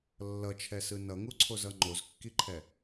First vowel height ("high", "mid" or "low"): mid